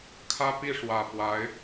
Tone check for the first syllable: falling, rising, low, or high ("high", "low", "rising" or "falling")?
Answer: high